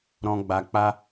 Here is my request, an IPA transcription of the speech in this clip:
ɾ ɔ̃˧ ɡ͡b a˧ k͡p a˧

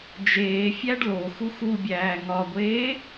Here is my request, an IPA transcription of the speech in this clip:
d͡ʒ eː fʲ æ ɖ l o x u x u bʲ æː ŋ ɒ ɡʷ eː

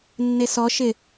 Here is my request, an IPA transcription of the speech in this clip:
nː e s ɔ ʃ ɪ

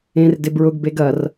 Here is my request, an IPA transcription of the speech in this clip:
ẽ r d ɪ b ɹ ʊ ɡ b e ɡ ɐ r

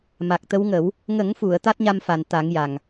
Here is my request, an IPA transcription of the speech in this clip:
m a˨˩ k̚ t̪ ə˧˥ w ŋ ə˨˩˦ w | ŋ ə˨˩˦ ŋ f u˨˩˨ ə̯ t̪ a˦˥ t̚ ɲ a˧ m f a˨˩ n t̪ a˨˩˦ ŋ j a˨˩ ŋ

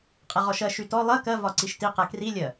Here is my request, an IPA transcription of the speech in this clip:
qʼ ɛ ʁ ɔ ʃ ɜ ʃ y t ɔ lˠ ɜ k ɜ v ɒ ǀ i ʃ t i q ɛ k r i lʲ ɜ

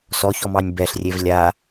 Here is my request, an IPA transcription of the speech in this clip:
s ɔ ç ɔ m ɑ nʲ b ɛ ɬ rʲ e v lʲ a

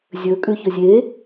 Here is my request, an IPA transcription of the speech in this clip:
zʲ ɵ kʼ ʉ ç ɵ zʲ e

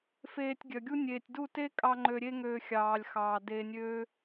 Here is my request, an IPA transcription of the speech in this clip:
f eː˧ tʲ ɡʲ œ˨ ɡʲ u˦ nʲ eː˨ tʲ d u˦˨ t e˦ kʼ ɑ˧ ŋ͡ǃ ø˧ ɾʲ e˦ ŋ øː˧ xʲ ɑː˨ lʲ x ɑː˨ d eː˧ nʲ øː˦

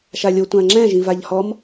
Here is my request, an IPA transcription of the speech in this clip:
ʃ a lʲ o tʷ ã ŋ͡ǁ ɛ̃ ʒ ĩ v a ʎ h ɔ m

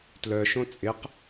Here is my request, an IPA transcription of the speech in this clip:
t l œ ʃ õ t͡sʼ ɪ q

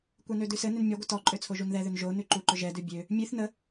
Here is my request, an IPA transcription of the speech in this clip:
kʷ ɛ n ø d ʉ s ɘ n ʏ n mʲ ɔ ɡʷ ə t ɔ ǃʼ ø t͡sʰ o ʒ u n ð ɛ ð ʏ n ʒ o n ʉ ǃ u ǃ ʏ ʒ ɛ d ʉ bʲ ø | mʲ ʉ θ n ə

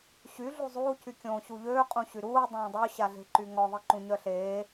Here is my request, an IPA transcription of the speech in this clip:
ɕ y ɮ u zˤ uː c y kʲ õː ɕ u ʎ øː qʼ ũ ɕ y ɾ uː dˤ õː dˤ o ɕ a ɮ e̤ ǃ y ŋ ɔ ðˤ i ǃ ũ ɲ œ ɬ eː

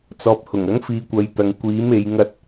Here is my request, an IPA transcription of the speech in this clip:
t͡s ɔː˨ p̚ h ʊ˨˩ ŋ ɐ˨˥ ŋ f iː˨˧ kʷ ɐ˨˧ j t̪ ɐ˨ ŋ kʷ iː˨˥ m e˨˧ j ŋ ɐ˧ t̚

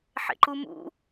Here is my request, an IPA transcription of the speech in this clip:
ħ ḛ ǃ u m ṵ

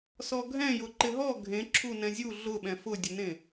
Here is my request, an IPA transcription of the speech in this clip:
s ɔ ɡʱ ɛ̃ j ʊ ǃ ɪ ɦ ɔ ɡʱ ẽ ǁʰ u n ɛ̃ zʲ u ɮ ʊ ɓ ɛ̃ f ʊ dʲ ʊ n ẽ

